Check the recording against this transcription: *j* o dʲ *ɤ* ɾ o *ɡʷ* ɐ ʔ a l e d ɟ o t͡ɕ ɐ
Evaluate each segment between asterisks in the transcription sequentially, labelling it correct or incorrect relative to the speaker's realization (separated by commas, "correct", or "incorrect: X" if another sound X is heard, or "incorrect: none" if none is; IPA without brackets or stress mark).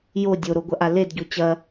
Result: correct, incorrect: o, correct